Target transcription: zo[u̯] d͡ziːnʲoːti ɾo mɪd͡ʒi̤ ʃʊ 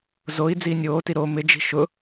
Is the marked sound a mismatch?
yes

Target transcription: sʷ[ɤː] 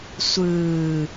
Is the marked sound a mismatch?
yes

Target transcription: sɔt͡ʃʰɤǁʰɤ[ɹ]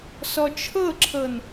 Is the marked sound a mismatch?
yes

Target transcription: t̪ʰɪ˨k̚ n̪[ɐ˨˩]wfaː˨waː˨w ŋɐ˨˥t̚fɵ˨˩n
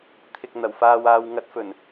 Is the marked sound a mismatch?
no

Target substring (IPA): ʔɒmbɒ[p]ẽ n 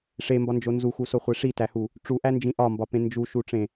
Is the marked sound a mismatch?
no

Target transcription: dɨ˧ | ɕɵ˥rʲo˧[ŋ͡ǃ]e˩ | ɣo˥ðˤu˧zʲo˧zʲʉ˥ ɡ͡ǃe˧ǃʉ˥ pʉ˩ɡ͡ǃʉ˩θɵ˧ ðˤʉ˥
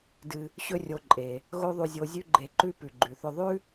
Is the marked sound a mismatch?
yes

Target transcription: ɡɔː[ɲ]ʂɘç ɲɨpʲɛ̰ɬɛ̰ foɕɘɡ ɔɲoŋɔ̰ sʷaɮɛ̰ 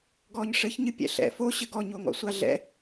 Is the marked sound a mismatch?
no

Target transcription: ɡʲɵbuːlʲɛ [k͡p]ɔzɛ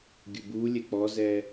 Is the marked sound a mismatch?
no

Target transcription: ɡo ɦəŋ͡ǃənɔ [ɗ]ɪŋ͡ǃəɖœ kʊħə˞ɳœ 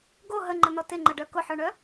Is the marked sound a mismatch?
yes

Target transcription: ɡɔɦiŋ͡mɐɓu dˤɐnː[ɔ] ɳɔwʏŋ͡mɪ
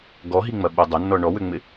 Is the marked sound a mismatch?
no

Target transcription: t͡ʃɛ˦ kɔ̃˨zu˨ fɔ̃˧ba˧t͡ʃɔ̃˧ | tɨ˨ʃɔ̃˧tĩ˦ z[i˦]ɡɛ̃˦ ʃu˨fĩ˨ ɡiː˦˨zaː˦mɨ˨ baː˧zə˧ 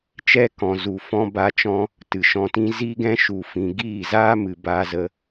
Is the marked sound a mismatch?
no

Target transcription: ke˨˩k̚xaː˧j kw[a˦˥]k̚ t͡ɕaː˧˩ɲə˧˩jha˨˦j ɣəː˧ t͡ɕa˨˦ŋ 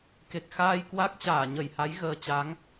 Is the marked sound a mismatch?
no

